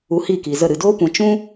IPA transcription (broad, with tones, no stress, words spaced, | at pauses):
u˧hi˦˨ki˨zə˦˨ ɾɨ˨doː˦kʷɛ̃˨ t͡ʃũ˦